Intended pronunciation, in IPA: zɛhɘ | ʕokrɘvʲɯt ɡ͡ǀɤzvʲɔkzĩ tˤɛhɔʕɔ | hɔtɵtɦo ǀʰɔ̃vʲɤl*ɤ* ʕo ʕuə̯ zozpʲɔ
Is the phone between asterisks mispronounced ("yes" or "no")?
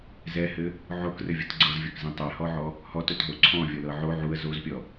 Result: no